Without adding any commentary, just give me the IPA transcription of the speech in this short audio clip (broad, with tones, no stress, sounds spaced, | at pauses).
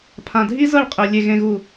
pʰ ã˨ dʱ i˦ z ɤ˦˨ ɭ qʼ e˨ lʲ e˨ ɣ ẽ˨ ɣ u˨